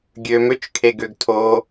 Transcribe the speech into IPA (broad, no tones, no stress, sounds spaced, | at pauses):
ɡʲ ø m ø t͡ʃ kʰ e ɡ ø ɡ tʰ o